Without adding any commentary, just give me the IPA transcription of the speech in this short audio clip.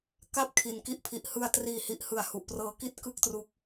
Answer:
ka˥˩p̚kʰi˨˩nki˦˥ʔ pʰi˨˩ʔhɯ˧a̯ triː˨˩hi˨˩ʔhɯ˨˩a̯ hu˨˩ʔprɤː˧ki˥˩t̚ kɯ˥˩k̚tru˦˥k̚

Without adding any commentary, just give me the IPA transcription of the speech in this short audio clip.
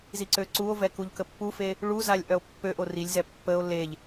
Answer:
ziǀøǀuo̯vɛ kuʎkəpːufe | ɭuzalʲ ʔœo̯pːøʔo rilʲzɛ pːəo̯ leʎ

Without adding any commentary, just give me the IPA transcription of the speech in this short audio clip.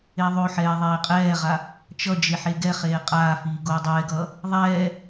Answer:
eðˤoħɛː ðˤeːqʼɛːʁa | t͡ʃʌ d͡ʒeħeɡɛχeː qʼaːfiː ɡoːdˤɛːɡʌː | ðˤɛː

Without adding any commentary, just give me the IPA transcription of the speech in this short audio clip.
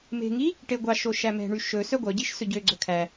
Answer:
me̤ŋi | ʈeɡʷɑʃo ʃæmɛ̤ɳy ʃɵ sœɡʷœɟiʃ sɵɟøɡ͡ǀɵ kʰæ

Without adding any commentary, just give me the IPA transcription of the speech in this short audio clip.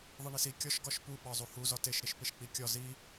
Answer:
ðˤiɳisi kʲɒʃ ɡɒʃpu ɓɒzˤuhu zɒteʃ ɾiʃpeʃk͡pikʲɒ zi

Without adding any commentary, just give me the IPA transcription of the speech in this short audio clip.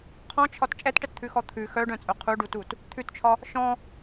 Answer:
qʰɔ̃t͡ʃʰɒt t͡ʃʼɛtʈɛtt̪ʰʉxɔ t̪ʰʉ xœɖœ̃t͡sʼœ qʰuɖutut | t̪ʰʉtt͡ʃʰɒ | ʃɔ̃

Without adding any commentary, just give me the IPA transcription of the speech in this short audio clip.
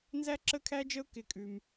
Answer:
nzæ˦ǁə˦˨kʰæ˦d͡ʒə˦ʊ̯ kɪ˦kʼʉ˦m

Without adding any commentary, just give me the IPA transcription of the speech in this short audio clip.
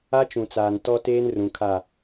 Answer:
a˦t͡ʃũ˨t͡saː˨n tɔ˦teː˦n rũ˨kʰa˦˨

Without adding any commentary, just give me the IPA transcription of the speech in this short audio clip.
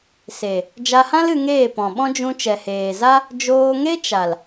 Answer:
se˨ | d͡ʒa˧hã˦l ɨ˧ŋeː˦˨pɔ̃˨ɓɔ̃˦ d͡ʒũ˧ t͡ʃɛ˨heː˨za˦ | d͡ʒoː˧ŋe˦t͡ʃa˨l

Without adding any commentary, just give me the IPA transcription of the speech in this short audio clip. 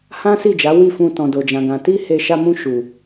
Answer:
hã˦si˦˨d͡ʒa˨˦ wi˦˨fũ˧ tɔ̃˨do˨d͡ʒã˨ɡã˨ ti˧ he˧ ʃa˧mũ˧ ʃu˨

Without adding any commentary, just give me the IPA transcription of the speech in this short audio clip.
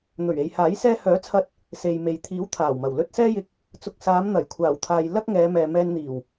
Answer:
n̪ɵ˨˩ɥe˨j haː˨˥j sɛː˧hœː˨˥t͡sʰɐ˧t̚ | se˨jme˨j t̪ʰiː˨˥w t̪ʰaː˨˩wmɐ˨˩w lɵ˧t̚ sɛː˥jɪ˧k̚ | t͡sʊ˨k̚saː˨˧m n̪ɐ˨˩jkʷʰaː˨˩wt̪ʰaː˨j lɐ˥k̚ ŋɛː˨˧mɛː˨ mɛː˧nn̪iː˨˩w

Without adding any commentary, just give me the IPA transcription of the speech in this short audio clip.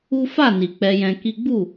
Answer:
u˦ fa˦˨ni˨ k͡pɛ˧jɛ̃˧ki˦ ɡ͡bu˦˨

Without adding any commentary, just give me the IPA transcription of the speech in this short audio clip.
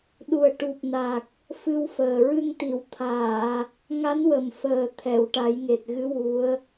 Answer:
ɗu˨˩ə̯ ʈu˨˩p̚na˨˩k̚ | fɨ˧wfəː˨˩ ɹɨ˧ŋt̪i˨˩˨wt̪ʰaː˨˩˨ | ŋa˧˥nwə˨˩mfəː˨˩ t̪ʰɛ˨˩˨wʈa˨˩˦jŋe˨˩t̚ɣɨ˧˥ wu˧˥ə̯

